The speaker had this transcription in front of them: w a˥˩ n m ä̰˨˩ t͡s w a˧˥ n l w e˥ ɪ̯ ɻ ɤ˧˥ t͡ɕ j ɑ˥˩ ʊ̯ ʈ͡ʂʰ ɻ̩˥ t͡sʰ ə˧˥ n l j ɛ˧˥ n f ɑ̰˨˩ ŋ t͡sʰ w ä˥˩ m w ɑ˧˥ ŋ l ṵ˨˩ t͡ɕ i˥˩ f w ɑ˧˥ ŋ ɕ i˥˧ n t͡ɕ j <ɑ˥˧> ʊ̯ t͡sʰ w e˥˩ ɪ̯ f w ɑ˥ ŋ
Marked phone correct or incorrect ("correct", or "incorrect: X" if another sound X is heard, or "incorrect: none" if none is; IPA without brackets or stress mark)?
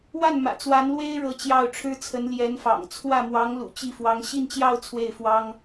correct